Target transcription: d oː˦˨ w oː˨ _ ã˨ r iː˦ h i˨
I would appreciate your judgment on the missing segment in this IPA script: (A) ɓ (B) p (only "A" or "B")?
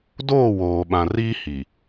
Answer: A